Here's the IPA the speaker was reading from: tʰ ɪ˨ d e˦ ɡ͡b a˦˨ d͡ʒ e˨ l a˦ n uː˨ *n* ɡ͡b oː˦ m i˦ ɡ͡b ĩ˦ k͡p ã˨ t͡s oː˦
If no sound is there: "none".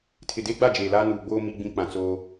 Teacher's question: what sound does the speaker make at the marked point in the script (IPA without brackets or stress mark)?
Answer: none